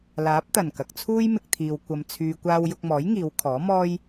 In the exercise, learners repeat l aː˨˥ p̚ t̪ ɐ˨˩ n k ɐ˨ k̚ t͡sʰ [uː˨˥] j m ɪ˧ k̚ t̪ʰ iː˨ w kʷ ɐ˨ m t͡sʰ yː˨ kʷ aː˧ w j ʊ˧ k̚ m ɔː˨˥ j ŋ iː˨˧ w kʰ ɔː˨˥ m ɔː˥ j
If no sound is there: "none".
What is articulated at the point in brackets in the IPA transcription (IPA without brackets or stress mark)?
uː˥